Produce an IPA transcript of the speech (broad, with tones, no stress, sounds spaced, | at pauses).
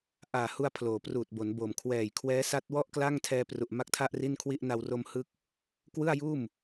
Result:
ʔ aː˨˩ h u˧ a̯ pʰ l oː˩˦ p r uː˨˩ t̚ b o˩˦ n b o˨˩ m kʰ w ɛː˨˩ j kʰ w ɛː˦˥ s a˦˥ t̚ w ɔ˥˩ ʔ k l a˥˩ ŋ tʰ ɛː˧ p r u˨˩ ʔ m a˦˥ k̚ tʰ a˥˩ ʔ r i˥˩ n kʰ w i˥˩ ʔ n a˧ w r o˧ m h ɯ˦˥ k̚ | k w ɯ˥˩ a̯ j uː˥˩ m